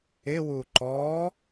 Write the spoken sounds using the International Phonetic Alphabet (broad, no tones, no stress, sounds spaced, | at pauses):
ɪ w u ǃ ɔ